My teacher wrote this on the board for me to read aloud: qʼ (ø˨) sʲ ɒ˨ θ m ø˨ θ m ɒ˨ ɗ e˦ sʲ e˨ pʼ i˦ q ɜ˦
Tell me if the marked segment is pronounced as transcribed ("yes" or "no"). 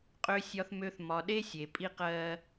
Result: yes